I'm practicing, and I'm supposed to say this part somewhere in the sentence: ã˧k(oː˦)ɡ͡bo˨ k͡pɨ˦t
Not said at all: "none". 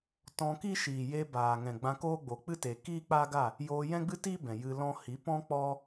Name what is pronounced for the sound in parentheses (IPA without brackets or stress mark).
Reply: oː˦